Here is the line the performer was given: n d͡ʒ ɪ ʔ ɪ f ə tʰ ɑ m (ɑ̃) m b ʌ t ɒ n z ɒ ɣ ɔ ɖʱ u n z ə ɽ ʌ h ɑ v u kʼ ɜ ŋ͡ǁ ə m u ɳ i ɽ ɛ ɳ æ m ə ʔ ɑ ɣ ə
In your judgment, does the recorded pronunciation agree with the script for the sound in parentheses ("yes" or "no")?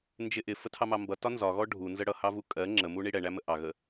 no